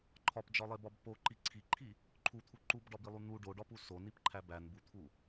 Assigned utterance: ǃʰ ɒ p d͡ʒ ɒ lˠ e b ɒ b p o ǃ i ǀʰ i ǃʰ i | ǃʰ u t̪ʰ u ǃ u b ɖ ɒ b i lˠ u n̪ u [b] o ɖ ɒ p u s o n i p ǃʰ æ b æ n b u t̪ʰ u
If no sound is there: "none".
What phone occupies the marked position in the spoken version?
ɖ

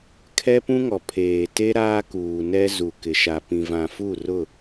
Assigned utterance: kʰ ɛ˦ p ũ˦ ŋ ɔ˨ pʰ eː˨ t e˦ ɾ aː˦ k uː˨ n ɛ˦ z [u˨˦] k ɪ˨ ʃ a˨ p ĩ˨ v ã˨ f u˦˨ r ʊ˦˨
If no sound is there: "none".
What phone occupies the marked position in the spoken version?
u˨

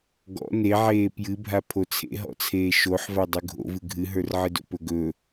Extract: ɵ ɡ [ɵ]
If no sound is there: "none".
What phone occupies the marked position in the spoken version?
ɵ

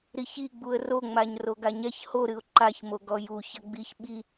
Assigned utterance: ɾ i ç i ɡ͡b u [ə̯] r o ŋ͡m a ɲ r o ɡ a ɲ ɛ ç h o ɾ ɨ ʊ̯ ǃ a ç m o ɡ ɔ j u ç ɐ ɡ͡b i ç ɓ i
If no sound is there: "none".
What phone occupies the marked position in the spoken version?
ə̯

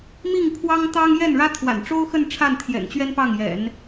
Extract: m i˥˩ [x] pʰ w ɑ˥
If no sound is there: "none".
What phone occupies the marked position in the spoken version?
ŋ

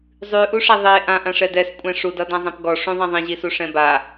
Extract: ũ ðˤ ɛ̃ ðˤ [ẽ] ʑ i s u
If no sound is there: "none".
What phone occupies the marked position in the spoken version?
ĩ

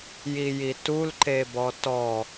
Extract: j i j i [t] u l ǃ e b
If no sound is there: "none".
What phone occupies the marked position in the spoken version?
t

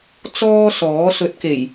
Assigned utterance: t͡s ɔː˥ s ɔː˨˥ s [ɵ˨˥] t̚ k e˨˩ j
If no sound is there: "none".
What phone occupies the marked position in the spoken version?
ɵ˨˥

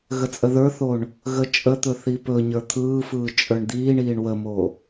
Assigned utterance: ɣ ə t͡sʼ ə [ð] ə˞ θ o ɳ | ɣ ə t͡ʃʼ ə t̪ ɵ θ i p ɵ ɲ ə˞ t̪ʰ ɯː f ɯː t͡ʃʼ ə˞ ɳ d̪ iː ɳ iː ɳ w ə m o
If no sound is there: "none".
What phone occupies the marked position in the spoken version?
ð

